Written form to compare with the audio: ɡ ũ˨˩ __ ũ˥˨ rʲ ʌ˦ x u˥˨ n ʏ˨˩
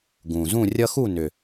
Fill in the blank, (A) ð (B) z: B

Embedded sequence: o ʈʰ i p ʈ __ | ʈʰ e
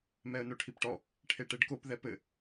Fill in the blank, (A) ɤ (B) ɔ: B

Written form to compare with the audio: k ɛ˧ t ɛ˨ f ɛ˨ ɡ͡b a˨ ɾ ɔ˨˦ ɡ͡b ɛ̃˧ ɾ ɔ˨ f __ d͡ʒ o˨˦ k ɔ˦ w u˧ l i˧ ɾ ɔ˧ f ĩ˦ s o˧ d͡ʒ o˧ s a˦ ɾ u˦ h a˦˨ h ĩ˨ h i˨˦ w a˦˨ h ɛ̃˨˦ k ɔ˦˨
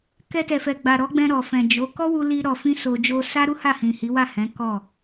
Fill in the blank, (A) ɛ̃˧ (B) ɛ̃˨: B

